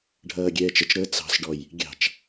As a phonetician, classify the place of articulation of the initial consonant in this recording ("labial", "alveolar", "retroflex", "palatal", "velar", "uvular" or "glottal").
retroflex